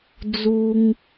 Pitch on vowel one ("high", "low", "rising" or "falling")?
high